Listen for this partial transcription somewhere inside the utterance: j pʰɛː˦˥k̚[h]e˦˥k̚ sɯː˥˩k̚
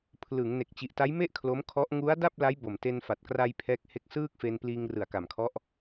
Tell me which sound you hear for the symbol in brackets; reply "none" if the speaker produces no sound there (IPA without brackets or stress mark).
h